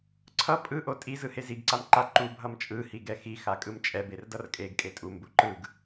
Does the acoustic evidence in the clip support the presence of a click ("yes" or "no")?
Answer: yes